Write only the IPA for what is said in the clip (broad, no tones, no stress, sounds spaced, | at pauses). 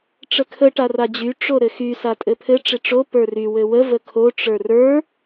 ʈ͡ʂ ə kʰ ə ʈ a r a d͡ʑ y ʈ͡ʂ o ɾ ɘ x y s a tʼ ɘ pʰ ɘ ʈ͡ʂ ɪ ʈ͡ʂ o p ə˞ r y w ɘ w ə v ə kʰ o ʈ͡ʂ ə˞ r ə˞